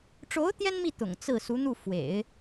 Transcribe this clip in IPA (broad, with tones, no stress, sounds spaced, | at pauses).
ʈ͡ʂ o˧˥ ʊ̯ t̪ j ɛ˥ n m i˥˩ t̪ ʊ̰˨˩ ŋ t͡s ɹ̩˥˩ s u˧˥ n̪ u˥˩ f w ḛ˨˩˦ ɪ̯